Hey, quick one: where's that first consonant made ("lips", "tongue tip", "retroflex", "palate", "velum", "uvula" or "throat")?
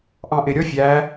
throat